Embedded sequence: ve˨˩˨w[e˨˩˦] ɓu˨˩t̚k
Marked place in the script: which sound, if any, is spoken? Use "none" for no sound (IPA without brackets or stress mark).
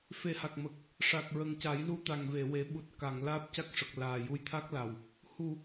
e˨˩˦